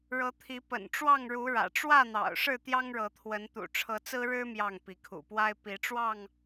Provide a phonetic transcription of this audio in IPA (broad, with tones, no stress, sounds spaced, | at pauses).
ɻ ɤ˨˦ t̪ʰ i˨˦ p ə̰˨˩ n ʈ͡ʂ w ɑ˥˨ ŋ ɻ u˨˦ ɻ ä̰˨˩ ʈ͡ʂ w ä˥˨ n̪ ɑ̰˨˩ ʊ̯ ʂ ɻ̩˥˨ t̪ j ɑ˦ ŋ ɻ ɤ˨˦ t̪ʰ w ə˨˦ n t̪ ṵ˨˩ ʈ͡ʂʰ ɤ˨˦ t͡s ɹ̩˦ ɻ ɻ̩˦ m j ɑ˥˨ ŋ p i˨˦ kʰ ṵ˨˩ p w a˦ ɪ̯ p i˨˦ ʈ͡ʂ w ɑ˥˨ ŋ